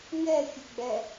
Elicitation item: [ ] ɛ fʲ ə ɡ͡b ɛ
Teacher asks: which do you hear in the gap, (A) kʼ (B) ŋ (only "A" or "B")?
B